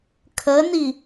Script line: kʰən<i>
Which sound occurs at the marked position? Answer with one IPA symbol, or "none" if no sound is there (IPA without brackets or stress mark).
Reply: i